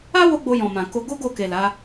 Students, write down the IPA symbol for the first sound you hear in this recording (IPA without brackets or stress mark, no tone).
a